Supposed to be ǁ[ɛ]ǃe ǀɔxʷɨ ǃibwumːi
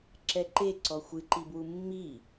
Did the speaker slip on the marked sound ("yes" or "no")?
no